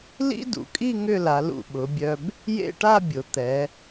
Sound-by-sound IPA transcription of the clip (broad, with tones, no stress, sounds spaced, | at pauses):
l ḭ˥ d ṵ˩˧ kʼ i˥˧ ŋ ʏ˥˧ l a˩˧ l ṵ˧˩ ɓ ʊ˩˧ bʲ œ˧ b | j ḛ˥˧ ʈ a˥˧ bʲ ʊ˩˧ t̪ ɛ˩˧